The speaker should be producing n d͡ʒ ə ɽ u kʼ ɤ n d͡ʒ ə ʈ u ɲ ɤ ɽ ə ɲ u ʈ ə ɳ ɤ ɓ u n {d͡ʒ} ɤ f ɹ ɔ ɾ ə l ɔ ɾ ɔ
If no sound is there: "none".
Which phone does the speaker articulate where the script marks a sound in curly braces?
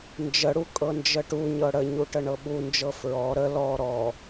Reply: d͡ʒ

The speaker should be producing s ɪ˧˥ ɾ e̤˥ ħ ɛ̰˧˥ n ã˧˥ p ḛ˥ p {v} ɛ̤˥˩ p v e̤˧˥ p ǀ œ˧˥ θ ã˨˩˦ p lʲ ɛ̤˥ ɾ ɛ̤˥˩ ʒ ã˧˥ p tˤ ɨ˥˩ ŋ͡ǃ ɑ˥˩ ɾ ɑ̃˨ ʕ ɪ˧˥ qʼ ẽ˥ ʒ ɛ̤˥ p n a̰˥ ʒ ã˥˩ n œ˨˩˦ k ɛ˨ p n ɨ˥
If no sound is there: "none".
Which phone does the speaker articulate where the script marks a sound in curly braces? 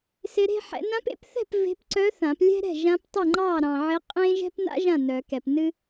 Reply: θ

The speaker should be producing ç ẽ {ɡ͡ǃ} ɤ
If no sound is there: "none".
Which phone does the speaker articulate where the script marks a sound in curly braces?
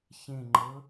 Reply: ŋ͡ǃ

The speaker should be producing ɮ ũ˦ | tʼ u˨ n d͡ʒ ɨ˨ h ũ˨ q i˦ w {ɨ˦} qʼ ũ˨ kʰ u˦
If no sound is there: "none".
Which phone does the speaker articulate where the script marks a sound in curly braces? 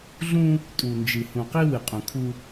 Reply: ɨ˨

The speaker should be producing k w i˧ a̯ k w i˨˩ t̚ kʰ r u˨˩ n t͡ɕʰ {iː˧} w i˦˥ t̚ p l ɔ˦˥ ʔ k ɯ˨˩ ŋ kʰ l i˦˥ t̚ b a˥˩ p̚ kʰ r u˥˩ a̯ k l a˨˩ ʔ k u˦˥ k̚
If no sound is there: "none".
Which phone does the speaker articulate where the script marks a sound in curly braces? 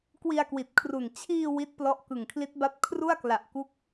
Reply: iː˧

